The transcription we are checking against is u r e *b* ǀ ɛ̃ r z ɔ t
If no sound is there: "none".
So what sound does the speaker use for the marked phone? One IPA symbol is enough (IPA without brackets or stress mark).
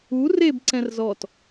b